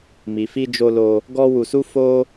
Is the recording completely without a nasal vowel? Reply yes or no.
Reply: yes